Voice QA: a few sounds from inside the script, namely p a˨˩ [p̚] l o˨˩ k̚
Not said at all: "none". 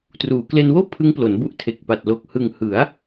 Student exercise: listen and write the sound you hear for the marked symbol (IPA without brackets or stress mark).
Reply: t̚